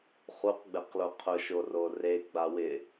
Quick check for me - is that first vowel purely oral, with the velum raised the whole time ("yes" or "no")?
yes